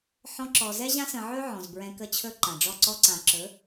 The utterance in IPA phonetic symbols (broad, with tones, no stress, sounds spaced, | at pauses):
ħ ɔ̃˧ ǁ ɔ˨ z ɛ˦ ʑ ã˦ s ə̃˧ ʕ ɵ˦ ʕ ɔ̃˨ z b ɹ ɛ̃˧ k ə˧ t͡ɕʰ ɵ˧ ǃ ã˨ ɖ͡ʐ ɔ˦˨ ǀ ɔ˦ ǀ ã˨ ǁ ɵ˨˦